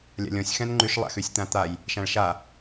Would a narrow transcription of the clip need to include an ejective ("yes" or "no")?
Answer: no